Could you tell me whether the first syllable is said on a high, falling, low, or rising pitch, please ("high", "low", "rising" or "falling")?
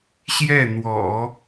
falling